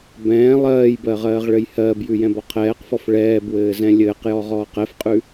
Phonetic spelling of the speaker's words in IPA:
b ɛ̃ː lˠ ɜː j b ɜ ʁ ɜː ʁ ɭ ɘ j h ɜː b j ʉ j ɛ̃ b ɔ qʰ ɛː q f ɔ f ɭ ɛː b w ɘː z ɛ̃ lʲ ɘː q j ɔ ʁ ɔː q ɛ f qʼ ʉ

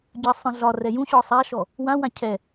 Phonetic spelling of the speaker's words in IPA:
ɟ ə sˤ ə̃ ɮ ɒ r ɛ j ũ ɕ ɔ sˤ a ʃ ɔ | w ã w ã cʰ ɛ

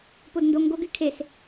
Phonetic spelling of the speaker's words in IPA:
p o d n d o ŋ ɡ o ɡ y kʰ e s

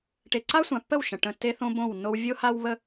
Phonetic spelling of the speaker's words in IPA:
ʈ e˨ ǀ a˦ sʷ ã˨ pː ə˦˨ w ʃ ə̃˨ ʈ ə̃˨ tː e˦ θ õ˦ b õ˦˨ w nː o˦ w vʲ o˦ h a˦ w β ə˦

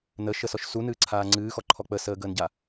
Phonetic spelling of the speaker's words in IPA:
n ə ʃ ə s ɔ ʃ s u n ɨː ǀʰ aː ŋ͡ǀ ɨː x ɔ ǃʰ ɔ k͡p ə s əː ɡ əː n ɟ a

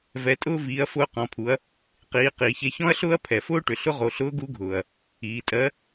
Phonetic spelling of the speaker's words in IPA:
v ɛ˩˧ tʼ ʊː˧ v iː˩˧ ɐ̯ f ʊː˧ q ɔ̃˩˧ pʰ u˩˧ ɐ̯ | q iː˩˧ q iː˩ ç e˧ ç ɔ̃˥ ɐ̯ ɬ ʊː˥ ɐ̯ pʰ ɛ˩ f ʊː˥ ʈ ʏ˩ ɬ ʊ˧˥ ʁ o˩˧ ɬ ʊː˧˥ ɡ u˧˥ ɡʱ ʊː˩ ɐ̯ | iː˩˧ tʼ ɜ˧˥

